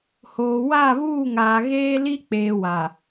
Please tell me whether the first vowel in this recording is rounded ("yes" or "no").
yes